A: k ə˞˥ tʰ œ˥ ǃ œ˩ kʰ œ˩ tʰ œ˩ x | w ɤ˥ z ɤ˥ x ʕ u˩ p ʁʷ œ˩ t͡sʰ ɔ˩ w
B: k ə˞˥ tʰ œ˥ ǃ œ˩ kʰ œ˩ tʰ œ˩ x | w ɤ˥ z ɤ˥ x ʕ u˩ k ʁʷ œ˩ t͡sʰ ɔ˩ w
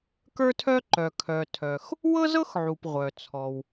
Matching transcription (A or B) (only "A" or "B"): A